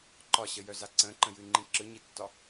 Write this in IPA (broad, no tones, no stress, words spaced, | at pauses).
ǃɒɕəjœza ǀə̃ǃə̃jɨŋ͡ǃĩ ǁɯɲitːɒ